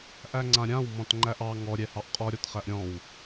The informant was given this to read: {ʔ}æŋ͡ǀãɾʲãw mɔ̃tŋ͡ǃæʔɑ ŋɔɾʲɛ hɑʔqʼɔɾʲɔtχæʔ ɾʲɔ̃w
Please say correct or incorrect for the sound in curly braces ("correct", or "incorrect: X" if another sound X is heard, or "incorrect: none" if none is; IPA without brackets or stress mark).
correct